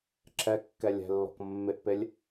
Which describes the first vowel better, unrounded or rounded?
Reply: unrounded